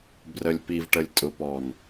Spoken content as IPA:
b r ə˨ lʲ p i˨ v ʈ ə˨ lʲ tʼ ʊ˨ p ɔ˨ n

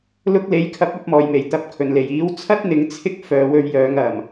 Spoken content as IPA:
l ʊ˧ k̚ l e˨ j kʰ ɐ˨˥ p̚ ɐ˨˥ p̚ m ɔː˨˩ j m e˨˩ j t̪ ɐ˨˥ p̚ kʰ ɵ˨˩ n l e˨˩ j iː˨˥ w t͡sʰ ɐ˥ t̚ n̪ ɪ˨˥ ŋ t͡sʰ ɪ˥ k̚ f œː˨˧ w ɵ˧ ɥ j œː˨˧ ŋ ɐ˨˩ m

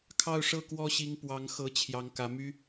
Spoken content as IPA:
kʰ ɑ˥˧ ʊ̯ ʂ ɤ˥˩ k w ɔ˥ ɕ i˧˥ ŋ p w ɑ˧˥ ŋ x ɤ˧˥ t͡ɕʰ j ɑ˧˥ ŋ k ä˧˥ m y˥

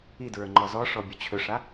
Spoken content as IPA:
i d ɹ ə˞ ŋ͡ǃ ɔ z ɔ ʂ ɔ bʲ ɵ t͡ɕʰ ɵ ʂ a

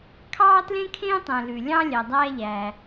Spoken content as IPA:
kʰ ɑː˥ t l ẽ˥ kʰ ẽː˥ tˤ ɛ̃˩ l ʉ˩ lʲ ɑ̃˥ lʲ æ˩ dˤ æː˥ ʎ æ˩

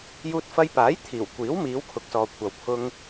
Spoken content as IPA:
j uː˧ t̚ f ɐ˧ j p aː˨˥ j t̪ʰ iː˨˩ w kʷ iː˨˥ w m iː˨˧ w kʰ ʊ˨ k̚ s ɔː˨ kʷʰ ɐ˨ w pʰ ʊ˧ ŋ

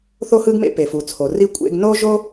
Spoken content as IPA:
θ o˥ h ɯ˥ ɡ m ḛ˥ p e˩ f u˩ t͡sʰ o˩ r i˥ kʷʼ ḛ˥ ɡ n o˥ ʒ o˥

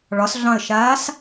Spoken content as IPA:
ɭ ɒ s ɮ ɑ̃ ə̯ ʃ aː s

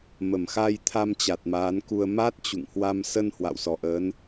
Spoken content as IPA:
m ə˧˩ m x a˧ j t̪ʰ a˧ m t͡ɕ a˨˩ t̚ m aː˨˦ n k u˧ ə̯ m a˦˥ t̚ t͡ɕ ṵ˧˨ ŋ h w a˧ m s ə˧ n h w a̰˧˨ w s ɔ˧˩ ʔ əː˨˦ n

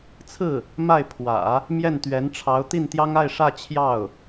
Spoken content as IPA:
t͡sʰ ɹ̩˥˩ | m a˥˩ ɪ̯ pʰ w ä̰˨˩˦ | m j ɛ˥˩ n t̪ ɥ ɛ˧˥ n ʈ͡ʂʰ ɑ˧˥ ʊ̯ t̪ i˥˩ n t̪ j ɑ˥ ŋ a˥˧ ɪ̯ ʂ ä˥˧ t͡ɕʰ j ɑ˥˩ ʊ̯

